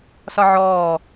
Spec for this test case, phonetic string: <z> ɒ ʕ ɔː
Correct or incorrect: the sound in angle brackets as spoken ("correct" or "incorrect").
incorrect